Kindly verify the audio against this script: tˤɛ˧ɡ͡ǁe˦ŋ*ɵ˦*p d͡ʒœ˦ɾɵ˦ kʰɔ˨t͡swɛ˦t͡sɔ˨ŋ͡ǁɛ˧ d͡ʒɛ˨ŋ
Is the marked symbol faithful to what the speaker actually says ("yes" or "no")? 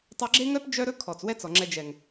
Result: no